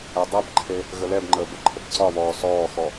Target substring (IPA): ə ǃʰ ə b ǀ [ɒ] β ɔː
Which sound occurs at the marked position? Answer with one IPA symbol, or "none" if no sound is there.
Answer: ɒ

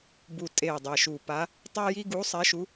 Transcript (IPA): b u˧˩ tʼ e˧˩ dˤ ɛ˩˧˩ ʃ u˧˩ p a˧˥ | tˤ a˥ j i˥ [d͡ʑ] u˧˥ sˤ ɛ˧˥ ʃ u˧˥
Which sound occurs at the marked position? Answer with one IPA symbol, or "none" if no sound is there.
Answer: ɡ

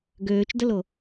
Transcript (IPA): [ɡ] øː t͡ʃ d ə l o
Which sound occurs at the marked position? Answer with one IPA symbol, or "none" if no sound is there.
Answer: ɡ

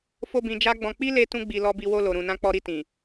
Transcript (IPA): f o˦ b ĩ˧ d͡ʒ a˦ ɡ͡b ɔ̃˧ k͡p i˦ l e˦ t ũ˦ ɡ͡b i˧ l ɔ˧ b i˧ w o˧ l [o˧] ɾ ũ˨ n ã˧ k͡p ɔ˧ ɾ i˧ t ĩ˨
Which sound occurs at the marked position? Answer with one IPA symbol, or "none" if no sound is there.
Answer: o˨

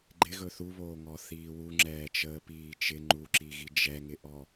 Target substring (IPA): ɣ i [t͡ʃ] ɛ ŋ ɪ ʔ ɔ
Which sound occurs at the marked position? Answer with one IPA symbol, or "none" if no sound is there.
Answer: d͡ʒ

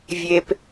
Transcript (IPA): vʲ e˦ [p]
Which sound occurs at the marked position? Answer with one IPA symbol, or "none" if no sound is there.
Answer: p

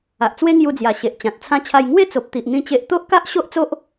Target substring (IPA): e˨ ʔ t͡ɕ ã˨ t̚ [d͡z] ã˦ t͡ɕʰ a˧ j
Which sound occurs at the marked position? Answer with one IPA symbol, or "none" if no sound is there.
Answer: t͡sʰ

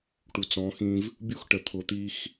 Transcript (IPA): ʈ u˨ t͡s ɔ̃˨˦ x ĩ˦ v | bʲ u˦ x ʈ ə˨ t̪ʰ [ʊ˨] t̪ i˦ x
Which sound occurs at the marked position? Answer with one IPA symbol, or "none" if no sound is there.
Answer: ʊ˨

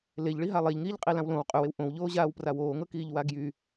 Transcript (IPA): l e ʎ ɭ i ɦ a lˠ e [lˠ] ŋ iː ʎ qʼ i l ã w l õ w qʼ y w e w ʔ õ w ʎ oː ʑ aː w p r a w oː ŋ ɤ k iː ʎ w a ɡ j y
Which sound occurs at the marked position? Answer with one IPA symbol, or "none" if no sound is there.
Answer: ʎ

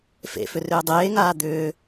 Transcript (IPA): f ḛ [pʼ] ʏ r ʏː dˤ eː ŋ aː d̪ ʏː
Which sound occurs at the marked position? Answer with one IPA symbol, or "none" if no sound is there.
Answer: f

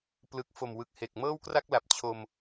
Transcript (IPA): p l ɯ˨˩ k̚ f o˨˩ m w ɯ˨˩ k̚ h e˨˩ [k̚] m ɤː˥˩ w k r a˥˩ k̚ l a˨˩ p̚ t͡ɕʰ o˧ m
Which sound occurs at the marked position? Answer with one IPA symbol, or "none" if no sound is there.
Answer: k̚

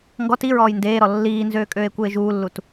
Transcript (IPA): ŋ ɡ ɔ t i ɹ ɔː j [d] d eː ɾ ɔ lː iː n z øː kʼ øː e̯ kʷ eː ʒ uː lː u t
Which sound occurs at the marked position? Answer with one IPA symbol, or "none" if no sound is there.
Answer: n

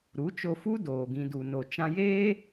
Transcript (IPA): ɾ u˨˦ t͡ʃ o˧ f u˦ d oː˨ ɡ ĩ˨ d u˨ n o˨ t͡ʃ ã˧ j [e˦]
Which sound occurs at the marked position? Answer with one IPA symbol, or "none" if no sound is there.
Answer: eː˦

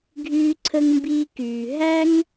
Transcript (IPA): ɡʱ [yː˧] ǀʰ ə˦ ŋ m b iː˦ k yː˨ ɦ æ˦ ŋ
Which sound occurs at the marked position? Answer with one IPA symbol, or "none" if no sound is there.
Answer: yː˦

